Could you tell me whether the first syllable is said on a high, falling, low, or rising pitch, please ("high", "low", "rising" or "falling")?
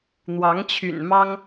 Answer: rising